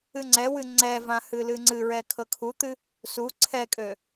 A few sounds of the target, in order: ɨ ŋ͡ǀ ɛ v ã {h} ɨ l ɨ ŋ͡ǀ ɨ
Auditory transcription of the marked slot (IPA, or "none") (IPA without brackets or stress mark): h